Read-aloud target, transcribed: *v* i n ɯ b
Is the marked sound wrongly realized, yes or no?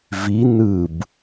no